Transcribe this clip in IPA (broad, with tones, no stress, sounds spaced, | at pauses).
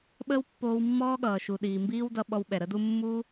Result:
ɓ əː˦ w pː oː˧ w mː ɔː˦ ɠ ʌː˨ ʃ u˨ ɗ iː˨ m b iː˦ w d ʌ˧ ɓ ɔ˧ w ɓ ɛ˨ ɾ ə˨˦ d u˦ mː u˦